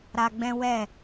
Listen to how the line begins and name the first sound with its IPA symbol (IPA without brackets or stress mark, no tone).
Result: ɾ